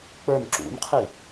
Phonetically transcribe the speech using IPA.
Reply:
k͡p ə˞ n ǁ ṵ n qʰ i

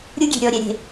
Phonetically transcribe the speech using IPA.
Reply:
ɾʲ u˦ ɡʲ e̤˨ ɾʲ ɔ˨ ɾʲ ɛ˨ ɾʲ e̤˨

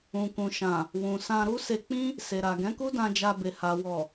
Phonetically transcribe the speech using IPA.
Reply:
ũ˨ k ũ˨ ʃ ã˨ | w ũ˨ s ã˧ ɾ u˦ s e˧ k͡p ĩ˦ | s e˨ ɾ a˨ ɡ ɛ̃˨˦ k u˦ d ã˧ d͡ʒ a˧ b e˨ h a˨ w ɔ˨

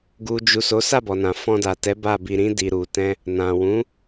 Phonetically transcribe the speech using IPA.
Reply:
ɡ u˨ d͡ʒ u˨ s o˨˦ s a˦˨ b ɔ˨ n ã˨ f ɔ̃˧ d a˨ t ɛ˨˦ b a˦˨ b i˧ ɾ ĩ˦ d i˧ ɾ u˧ t ɛ̃˦ | n ã˨ w ũ˨˦

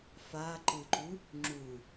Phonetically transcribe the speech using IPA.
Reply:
f a ǃ ɯ ǃ u | ŋ͡ǁ u

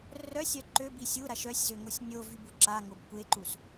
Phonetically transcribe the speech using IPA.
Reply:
r œ sʲ œ ǃ ø b i sʲ u ɾ a ʃ œ sʲ z ø ŋ o sʲ nʲ o v y b u ǁ a ŋ o b kʷ e ǃ u s

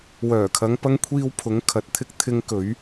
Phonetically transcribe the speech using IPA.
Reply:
w œː˨˩ kʰ ɐ˨˧ ŋ p ɐ˧ ŋ kʷʰ iː˧ w pʰ ʊ˨˧ ŋ kʰ ɐ˨˥ t̚ t̪ʰ ɪ˧ k̚ t̪ʰ ɪ˧ ŋ k ɵ˨˧ ɥ

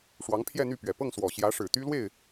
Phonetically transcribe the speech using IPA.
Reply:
ʂ w ɑ˧˥ ŋ pʰ j ɛ˥˧ n̪ y˥˩ p ɥ ɛ˨˩ p ɤ˥˩ ŋ s w ɔ˨˩ ɕ j ä˧˥ ʂ ɻ̩˨˩ t̪ y˥ l w e˥˩ ɪ̯

